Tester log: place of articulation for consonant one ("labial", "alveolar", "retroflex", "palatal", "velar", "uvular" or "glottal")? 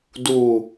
alveolar